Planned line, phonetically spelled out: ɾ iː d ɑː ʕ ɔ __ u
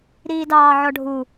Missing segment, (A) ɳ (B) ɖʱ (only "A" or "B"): B